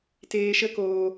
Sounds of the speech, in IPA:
teː˧ʃə˦koː˧

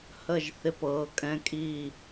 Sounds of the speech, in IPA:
hə˧˩ʒ θɪ˧˩pɤː˩˧ kʼɛ̃˩˧kʼiː˧˩

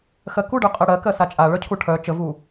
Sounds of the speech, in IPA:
xɜku ɖœqʼɜɽɜ kɜsat͡ʃʼa ɭœcʰuʈʰœ t͡ʃəvu

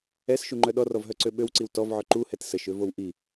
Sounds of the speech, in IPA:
ɛsʃuŋ͡ǃœ ɗɔrɔvɦœǀø ɓøwǀiw tɔvʕœ ǃuhɛt səʃøvow ʔi

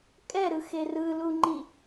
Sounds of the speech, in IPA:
kʼɛɾɯxe rɯluŋ͡ǃi

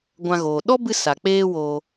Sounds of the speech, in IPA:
ɡʷã˧ɣoː˨ ɗɔ˦bɨ˧ sa˨k͡peː˦woː˧

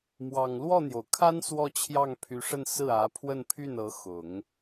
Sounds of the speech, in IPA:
mwɑ˨˩ŋlwɔ˥˩n̪jo˩ʊ̯kʰa˥n swɔ˥˧t͡ɕʰjɑ˥˩ŋpʰy˧˥ʂə˥˧n sɹ̩˥˩ä˧˥pʰwə˥˧npʰy˥˩n ɤ˧˥ xʊ˨˩˦ŋ

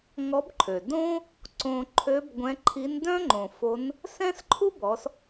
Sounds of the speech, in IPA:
ŋɔ˧˥bǃʰø˩ dõ˥ | ǀõ˧ ǃʰø˧˥b ɡʷɛ̃˧˥ǃʰi˧˥n dœ̃˥ŋ͡ǃõ˩ fo˧˥n | sɛ̃˥sǃʰu˥bɔ˩˧s

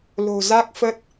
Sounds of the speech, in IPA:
lo̤˨˩za˦˥k̚fə˦˥t̚

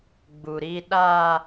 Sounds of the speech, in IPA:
ɡ͡bu˨ɾiː˦ ɗaː˦

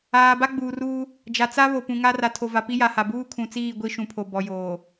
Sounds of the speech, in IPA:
aː˨ ba˦ɡ͡buː˨ruː˦ | d͡ʒa˨t͡sa˦βo˨pũ˨ ŋa˦ ra˨tʰo˨va˨ pi˦ja˨ha˨ buː˦kʰũ˨t͡siː˦˨ ɡʷi˦ʃũ˨pʰo˨bɔ˨ joː˨

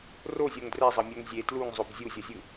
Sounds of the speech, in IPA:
rozʲoŋ drɛzˤʌmʲoŋ zʲe tluŋzˤob zʲuzʲʌzʲɯ

